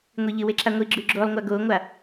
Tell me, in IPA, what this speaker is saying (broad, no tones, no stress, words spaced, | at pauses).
ŋʷiʎɨweǁa ŋʷi ɡ͡ǁʉɡ͡ǁolˠŋʷa ɡoŋʷa